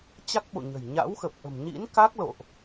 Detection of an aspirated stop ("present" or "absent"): absent